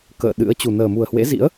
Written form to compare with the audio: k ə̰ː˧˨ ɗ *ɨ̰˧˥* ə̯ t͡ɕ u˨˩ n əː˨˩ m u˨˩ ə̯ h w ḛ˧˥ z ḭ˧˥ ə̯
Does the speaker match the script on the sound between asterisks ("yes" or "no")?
yes